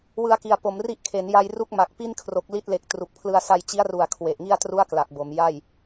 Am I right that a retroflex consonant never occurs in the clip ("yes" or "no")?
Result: yes